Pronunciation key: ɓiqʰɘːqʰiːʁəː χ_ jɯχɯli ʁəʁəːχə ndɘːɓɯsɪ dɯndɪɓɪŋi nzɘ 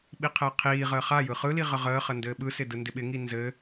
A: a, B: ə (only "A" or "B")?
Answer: A